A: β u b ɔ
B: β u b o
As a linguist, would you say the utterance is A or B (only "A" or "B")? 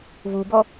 A